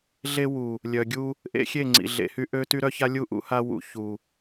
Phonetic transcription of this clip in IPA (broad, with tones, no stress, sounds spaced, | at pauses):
ɮ e˦ w u˨ | lʲ œ˨ ɡʲ u˦ | ʔ ḛ˦ xʲ e˦˨ ŋ͡ǀ ḭ˨ ɮ ḛ˨ h y˦ ʔ ø˦ t y˦ ɾ œ˦ ç a˦ lʲ u˦˨ ʔ ṵ˦ h a˦ w ṵ˨ ç u˨